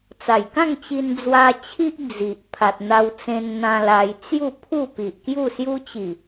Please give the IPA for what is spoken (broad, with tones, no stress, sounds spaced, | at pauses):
t͡s a˨˩ j k ã˥˧ ŋ t͡ɕ i˧ n d͡z w a˧ t͡ɕʰ i˦ ʔ d͡z i˨ ʔ pʰ a˨ t̚ n̪ a˧ w t͡s ẽ˧ n n̪ ã˧ l a˧ j t͡s j u˥˧ pʰ u˥˧ p i˨ ʔ k j u˥˧ s j u˦ t͡ɕ i˨˩